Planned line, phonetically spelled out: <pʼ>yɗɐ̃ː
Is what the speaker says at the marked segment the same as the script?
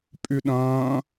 yes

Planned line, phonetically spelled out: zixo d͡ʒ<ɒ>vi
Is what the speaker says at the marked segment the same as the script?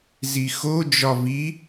yes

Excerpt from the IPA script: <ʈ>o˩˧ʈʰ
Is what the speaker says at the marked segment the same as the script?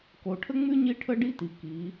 no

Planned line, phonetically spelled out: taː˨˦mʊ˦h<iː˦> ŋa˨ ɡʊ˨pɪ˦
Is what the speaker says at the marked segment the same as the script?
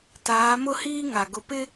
yes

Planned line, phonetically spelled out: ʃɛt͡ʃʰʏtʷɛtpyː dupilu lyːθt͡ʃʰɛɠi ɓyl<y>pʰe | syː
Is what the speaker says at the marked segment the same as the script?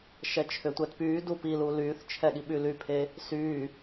yes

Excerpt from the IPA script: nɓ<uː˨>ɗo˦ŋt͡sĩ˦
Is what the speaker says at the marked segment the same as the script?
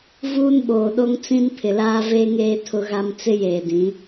no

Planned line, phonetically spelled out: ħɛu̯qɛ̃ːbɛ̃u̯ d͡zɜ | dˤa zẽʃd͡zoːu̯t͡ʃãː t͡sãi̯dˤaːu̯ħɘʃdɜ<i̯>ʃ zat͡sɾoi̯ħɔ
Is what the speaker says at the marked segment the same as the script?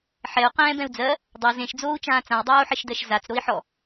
no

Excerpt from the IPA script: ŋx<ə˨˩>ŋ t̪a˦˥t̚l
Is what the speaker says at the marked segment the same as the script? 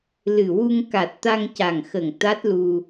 yes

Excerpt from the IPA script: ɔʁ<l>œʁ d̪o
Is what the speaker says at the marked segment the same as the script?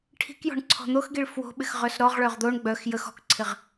no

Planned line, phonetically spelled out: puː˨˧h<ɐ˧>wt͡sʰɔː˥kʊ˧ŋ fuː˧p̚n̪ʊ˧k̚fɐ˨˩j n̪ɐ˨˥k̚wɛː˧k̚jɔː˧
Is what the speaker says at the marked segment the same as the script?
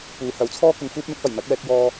no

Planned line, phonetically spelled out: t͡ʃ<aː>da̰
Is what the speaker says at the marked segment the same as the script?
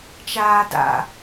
yes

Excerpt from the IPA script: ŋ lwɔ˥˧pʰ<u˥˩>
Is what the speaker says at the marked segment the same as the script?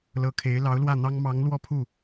yes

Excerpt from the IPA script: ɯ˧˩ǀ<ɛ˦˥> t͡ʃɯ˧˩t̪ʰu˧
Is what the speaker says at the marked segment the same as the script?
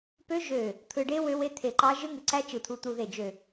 no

